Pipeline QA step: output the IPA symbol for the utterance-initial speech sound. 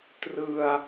t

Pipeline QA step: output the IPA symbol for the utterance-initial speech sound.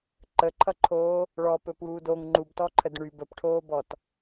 ǃ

